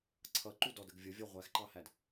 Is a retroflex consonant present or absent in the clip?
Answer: absent